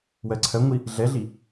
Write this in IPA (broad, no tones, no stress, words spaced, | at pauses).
wɜǀʰɜŋʷi | ɮɛɮi